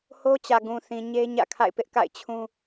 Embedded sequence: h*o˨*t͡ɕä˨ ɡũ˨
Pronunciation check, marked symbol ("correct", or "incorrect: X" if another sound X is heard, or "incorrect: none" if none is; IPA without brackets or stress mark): incorrect: o˦